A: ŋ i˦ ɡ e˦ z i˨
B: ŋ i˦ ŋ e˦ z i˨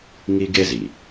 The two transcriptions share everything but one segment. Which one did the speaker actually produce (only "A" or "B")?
A